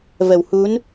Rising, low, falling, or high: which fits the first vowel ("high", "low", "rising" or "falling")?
low